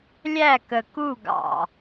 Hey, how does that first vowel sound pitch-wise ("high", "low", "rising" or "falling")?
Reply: falling